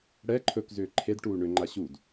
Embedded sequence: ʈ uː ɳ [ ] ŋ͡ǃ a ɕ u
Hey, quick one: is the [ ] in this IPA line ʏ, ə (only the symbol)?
ʏ